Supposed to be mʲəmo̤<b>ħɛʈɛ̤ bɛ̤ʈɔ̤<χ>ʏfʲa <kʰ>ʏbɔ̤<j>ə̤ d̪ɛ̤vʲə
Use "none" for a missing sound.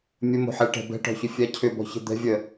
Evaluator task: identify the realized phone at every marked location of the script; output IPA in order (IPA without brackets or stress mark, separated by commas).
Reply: none, ç, cʰ, ç